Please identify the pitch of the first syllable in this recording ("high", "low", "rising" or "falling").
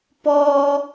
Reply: high